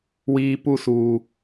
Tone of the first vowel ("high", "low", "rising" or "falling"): high